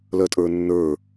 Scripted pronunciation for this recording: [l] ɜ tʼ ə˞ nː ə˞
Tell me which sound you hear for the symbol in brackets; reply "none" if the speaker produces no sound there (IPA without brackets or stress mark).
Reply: l